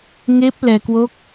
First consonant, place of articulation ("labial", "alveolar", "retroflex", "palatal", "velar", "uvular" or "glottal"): velar